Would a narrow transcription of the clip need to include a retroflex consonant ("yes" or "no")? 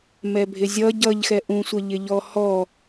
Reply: no